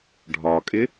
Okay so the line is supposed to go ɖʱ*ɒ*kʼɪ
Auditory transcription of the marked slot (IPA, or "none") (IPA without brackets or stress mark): ɒ